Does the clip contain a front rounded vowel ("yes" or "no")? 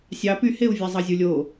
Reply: yes